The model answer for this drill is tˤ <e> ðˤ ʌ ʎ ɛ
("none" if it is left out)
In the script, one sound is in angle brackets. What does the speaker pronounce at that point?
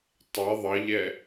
ɛ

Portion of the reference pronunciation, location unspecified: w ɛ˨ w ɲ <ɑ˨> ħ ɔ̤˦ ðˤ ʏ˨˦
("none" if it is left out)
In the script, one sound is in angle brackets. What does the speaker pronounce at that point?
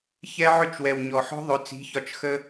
ɔ˨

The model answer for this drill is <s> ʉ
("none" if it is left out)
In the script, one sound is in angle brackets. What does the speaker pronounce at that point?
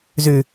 z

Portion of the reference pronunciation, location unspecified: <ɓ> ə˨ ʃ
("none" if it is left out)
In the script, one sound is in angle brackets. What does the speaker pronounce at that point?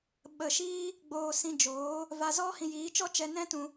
ɓ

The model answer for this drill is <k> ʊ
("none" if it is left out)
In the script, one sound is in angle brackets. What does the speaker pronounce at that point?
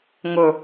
ŋ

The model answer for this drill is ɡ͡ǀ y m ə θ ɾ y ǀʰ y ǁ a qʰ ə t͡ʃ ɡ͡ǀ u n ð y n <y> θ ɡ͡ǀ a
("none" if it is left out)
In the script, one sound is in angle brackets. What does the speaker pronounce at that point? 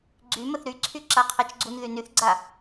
y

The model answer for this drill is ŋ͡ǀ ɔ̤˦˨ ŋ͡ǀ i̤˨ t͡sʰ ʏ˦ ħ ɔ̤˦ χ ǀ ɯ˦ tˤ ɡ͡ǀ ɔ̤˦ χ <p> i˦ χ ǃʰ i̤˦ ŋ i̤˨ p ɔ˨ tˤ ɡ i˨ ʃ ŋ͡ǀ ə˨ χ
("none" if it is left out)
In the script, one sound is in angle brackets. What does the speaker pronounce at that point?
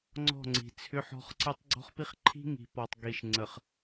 p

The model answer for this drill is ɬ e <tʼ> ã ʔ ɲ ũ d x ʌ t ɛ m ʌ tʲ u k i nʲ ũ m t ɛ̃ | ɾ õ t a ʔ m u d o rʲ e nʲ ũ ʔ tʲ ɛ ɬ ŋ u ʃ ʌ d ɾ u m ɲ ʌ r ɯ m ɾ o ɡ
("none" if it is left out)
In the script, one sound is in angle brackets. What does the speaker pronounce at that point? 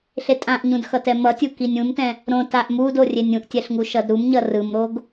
tʼ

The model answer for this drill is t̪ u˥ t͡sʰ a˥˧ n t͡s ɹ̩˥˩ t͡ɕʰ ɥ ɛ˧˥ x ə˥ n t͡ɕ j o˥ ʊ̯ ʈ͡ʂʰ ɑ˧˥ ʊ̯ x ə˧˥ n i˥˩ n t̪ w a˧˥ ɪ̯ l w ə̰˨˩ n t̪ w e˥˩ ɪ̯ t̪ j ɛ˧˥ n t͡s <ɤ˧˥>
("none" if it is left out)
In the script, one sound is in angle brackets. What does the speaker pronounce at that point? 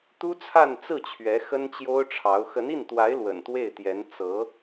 ɤ˧˥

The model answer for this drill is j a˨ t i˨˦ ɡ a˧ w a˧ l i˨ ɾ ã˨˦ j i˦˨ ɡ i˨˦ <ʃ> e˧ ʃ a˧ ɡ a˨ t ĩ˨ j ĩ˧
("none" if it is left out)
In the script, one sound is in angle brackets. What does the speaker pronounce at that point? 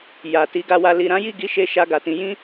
ʃ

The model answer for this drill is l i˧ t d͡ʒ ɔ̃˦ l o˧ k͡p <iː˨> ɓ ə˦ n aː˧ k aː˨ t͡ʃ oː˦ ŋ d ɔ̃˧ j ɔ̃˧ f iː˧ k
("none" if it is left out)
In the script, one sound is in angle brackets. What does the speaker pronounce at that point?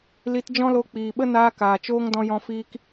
iː˨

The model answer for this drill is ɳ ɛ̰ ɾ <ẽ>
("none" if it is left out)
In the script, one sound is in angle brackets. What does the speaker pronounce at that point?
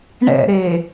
e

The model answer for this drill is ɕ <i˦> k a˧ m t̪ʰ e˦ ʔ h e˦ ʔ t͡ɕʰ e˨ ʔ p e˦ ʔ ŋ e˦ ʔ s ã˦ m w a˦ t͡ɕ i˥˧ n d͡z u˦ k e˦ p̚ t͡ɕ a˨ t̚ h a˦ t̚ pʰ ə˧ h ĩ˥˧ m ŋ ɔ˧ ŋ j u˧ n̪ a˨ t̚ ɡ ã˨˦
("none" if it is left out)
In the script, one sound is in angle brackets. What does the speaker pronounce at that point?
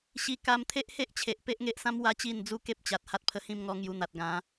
i˧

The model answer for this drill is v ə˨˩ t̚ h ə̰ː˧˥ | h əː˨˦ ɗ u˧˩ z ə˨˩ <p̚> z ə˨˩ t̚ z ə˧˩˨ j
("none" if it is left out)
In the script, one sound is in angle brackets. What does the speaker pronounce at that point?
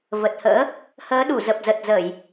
p̚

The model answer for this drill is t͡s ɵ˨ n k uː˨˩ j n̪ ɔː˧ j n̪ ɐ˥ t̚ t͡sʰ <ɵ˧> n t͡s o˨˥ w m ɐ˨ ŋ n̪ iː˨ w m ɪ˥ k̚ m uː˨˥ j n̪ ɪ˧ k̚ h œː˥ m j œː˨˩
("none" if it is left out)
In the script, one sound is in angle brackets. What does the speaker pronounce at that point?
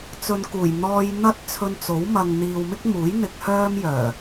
ɵ˧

